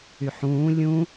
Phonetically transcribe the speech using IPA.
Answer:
yħũː lʲũ

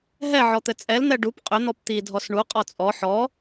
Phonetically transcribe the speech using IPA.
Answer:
ɦɛʕɔt̪ɘ t͡sʼɛln̪ɛ ɖup qʼʏn̪ɔp t̪idʱɔs ɳuqʼɔ t͡sʼɔ ħɔ

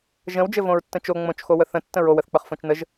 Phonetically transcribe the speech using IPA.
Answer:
ʒə̃w d͡ʒɘvõɹtːə̃t͡ʃo ŋ͡mõt͡ʃxo wəθə̃ tːə̃ɹow əθk͡pəχfõt͡ʃnəʒ

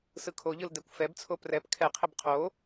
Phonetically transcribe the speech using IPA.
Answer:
sɯkʰoʎɯl dɛkʷfɛbt͡sʰo prɛp kʰɛqʰɪb qʰo

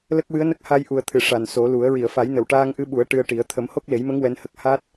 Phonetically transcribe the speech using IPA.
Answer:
lə˦˥k̚wɨ˧˥ə̯nə˦˥k̚ ha˧jʔu˨˩ə̯t̪ʰɨ˨˩˨ ʂa˨˩nso˨˩˦lu˨˩˦ə̯ ɹi˨˩˨ə̯fa˨˩˦jnə˨˩˨w ʈaː˧ŋʔɨ˧˥ɓu˨˩˦ə̯ ʈɨ˧ə̯ʈi˨˩˦ə̯ t̪ʰə˨˩˦mho˦˥k̚le˨˩˦jmə˧˥ŋ wɛ˧˥nhə˦˥k̚ ha˦˥t̚

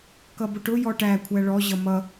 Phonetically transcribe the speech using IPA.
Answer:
kʌbʊʈʊ jɔʈæ kʷʰæɭɔ ʑʌmʌ

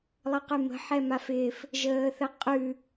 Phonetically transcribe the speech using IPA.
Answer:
lˠəqʉmə̤ ħɛmafɪːf | ʒəːθəqʼʉ

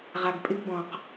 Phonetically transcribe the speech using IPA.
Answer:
ʁa˨ɡpʼɪ˦ɡbɔ̃˨q

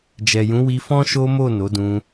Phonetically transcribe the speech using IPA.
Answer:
d͡ʒɛ˨jũ˨˦wi˧ fɔ̃˦ʃo˦mo˦˨ no˨˦dũ˧

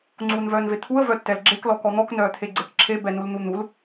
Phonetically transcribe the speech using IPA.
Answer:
ŋ͡ǀuːnvœːnvet̪ʰuə̯ vœtːɛlɡ͡ǁek lɔkɔn̪ɔk nœːt̪ʰeɡ͡ǀekǁʰe bɛnuln̪un̪ul

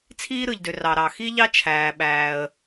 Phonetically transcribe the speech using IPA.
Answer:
t͡sʰiː˥ɾɯ˩ʎdø˩ rɑ˩ɾɑ˩xi˥ʎɑ˥ t͡ʃʰæː˩ɓæː˩ə̯

